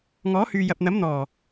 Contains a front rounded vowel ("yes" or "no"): yes